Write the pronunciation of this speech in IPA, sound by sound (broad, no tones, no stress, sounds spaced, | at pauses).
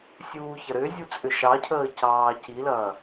sʲ uː ç ɐ ɾ ʏ zʲ u t͡sʼ ʏ ʃ ɑ cʰ əː c ɑː c i l ɐː